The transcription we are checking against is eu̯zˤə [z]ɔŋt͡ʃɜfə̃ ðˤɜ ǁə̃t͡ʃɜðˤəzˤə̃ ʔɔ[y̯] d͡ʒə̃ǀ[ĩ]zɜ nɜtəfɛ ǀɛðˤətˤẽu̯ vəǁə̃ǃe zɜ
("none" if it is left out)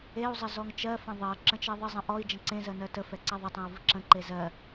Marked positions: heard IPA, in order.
z, i̯, ẽ

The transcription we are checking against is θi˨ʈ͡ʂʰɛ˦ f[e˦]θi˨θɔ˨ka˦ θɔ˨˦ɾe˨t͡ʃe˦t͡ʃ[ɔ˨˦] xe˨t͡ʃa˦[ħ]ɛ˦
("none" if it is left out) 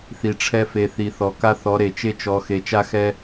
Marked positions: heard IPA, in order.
e˨, ɔ˨˦, x

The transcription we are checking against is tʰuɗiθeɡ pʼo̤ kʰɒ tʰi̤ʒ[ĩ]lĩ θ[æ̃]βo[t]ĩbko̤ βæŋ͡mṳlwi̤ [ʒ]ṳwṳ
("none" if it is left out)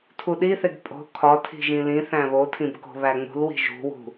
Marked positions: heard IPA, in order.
ĩ, æ̃, tʰ, ʒ

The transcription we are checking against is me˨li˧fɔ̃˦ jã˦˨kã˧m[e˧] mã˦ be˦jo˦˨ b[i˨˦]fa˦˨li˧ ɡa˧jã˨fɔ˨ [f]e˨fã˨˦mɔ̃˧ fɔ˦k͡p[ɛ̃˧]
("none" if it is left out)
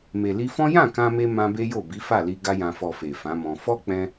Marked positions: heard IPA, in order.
e˧, i˨˦, f, ɛ̃˧

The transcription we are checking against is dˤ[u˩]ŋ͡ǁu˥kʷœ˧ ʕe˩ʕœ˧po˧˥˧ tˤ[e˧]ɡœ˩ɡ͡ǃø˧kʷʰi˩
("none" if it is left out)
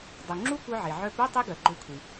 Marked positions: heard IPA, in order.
u˩, e˥

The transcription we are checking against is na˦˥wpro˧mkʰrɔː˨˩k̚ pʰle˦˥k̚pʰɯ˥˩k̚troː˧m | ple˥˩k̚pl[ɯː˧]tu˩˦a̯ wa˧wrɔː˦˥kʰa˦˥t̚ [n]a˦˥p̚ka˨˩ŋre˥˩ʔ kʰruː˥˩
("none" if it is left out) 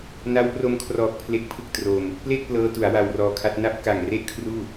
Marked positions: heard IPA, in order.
ɤː˧, n

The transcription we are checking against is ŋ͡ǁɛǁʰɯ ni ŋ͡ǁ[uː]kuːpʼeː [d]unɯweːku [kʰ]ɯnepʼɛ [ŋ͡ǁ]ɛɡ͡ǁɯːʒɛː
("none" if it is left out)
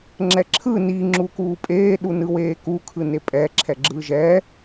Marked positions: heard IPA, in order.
u, ɗ, kʰ, ǁʰ

